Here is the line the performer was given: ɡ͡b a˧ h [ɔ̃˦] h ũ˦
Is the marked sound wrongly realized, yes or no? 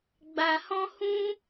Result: no